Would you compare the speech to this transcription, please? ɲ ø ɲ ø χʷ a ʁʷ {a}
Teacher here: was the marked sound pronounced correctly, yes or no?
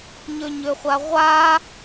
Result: yes